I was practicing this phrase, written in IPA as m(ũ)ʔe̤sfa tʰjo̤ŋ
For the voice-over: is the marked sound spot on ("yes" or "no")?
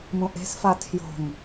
yes